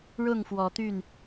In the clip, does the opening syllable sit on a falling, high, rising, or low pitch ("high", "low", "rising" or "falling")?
falling